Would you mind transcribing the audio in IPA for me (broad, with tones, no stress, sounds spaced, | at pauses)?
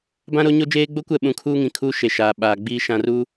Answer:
b ã˦ ɾ o˨˦ ɲ o˦ d͡ʒ eː˦ ɡ͡b o˦ kʷ ɛ˦˨ ɓ ũ˨˦ kʰ uː˦ ŋ ĩ˨ kʰ uː˦ ʃ e˨ ʃ aː˨ ɓ aː˨ ɡ͡b iː˦ ʃ ã˨ r uː˦